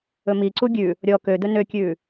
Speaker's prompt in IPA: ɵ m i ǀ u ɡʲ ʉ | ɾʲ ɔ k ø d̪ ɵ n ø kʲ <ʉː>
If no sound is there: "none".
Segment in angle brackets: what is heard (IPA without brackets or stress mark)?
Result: ʉː